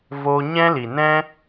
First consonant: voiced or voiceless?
voiced